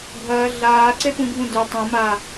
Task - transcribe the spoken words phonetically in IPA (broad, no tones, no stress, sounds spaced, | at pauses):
ɡʱ ɐː ɮ aː ǀ e p ũ ɡʱ ũ d ɵ tˤ ɐ̃ m a